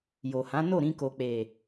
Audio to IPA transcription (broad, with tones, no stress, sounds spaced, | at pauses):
j o˨ h ã˨˦ n o˦˨ ɾ ĩ˧ k o˨ k͡p e˨